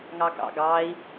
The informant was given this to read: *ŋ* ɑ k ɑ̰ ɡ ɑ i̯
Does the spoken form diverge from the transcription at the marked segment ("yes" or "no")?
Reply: no